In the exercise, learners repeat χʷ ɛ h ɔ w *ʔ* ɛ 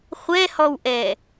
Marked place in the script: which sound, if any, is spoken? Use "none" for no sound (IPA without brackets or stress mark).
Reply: ʔ